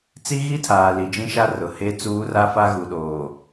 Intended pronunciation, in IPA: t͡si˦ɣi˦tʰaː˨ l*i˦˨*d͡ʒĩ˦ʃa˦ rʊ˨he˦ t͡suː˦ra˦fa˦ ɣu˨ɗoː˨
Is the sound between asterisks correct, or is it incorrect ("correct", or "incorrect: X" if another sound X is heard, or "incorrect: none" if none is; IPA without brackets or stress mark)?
incorrect: i˨